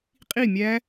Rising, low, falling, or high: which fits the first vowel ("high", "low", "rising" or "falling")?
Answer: falling